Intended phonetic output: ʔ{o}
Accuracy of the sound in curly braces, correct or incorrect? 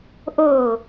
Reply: correct